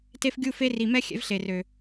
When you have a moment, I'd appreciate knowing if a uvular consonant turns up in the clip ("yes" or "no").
no